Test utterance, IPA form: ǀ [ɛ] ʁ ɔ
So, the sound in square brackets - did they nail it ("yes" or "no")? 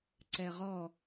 yes